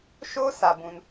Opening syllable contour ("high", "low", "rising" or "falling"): high